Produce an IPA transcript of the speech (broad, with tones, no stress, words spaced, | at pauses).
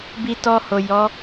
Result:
bi˧ tɔ˧ho˨ jɔ˨˦